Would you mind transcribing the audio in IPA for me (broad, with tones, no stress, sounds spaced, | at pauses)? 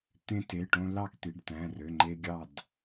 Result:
t̪ ẽ˧ t e˩˧˩ ʈ õ˧ l ɑ˥˨ k t̪ i˩˧˩ ɖ t æ̃˩˧˩ r ø˩˧˩ ŋ͡ǃ e˧ ɡʲ ɑ˥˨ d